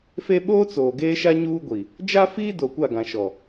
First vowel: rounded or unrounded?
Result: unrounded